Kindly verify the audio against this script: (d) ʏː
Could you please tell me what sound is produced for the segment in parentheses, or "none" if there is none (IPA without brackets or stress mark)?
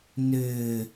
n